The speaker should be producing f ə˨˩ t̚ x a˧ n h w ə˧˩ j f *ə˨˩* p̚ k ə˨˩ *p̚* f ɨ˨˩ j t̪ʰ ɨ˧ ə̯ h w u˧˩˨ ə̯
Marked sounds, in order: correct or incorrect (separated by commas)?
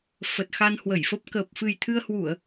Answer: incorrect, correct